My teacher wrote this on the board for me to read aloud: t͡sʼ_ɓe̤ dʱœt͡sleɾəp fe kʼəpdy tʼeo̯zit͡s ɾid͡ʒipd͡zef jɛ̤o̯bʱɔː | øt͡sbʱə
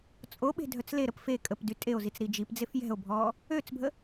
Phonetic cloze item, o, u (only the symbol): o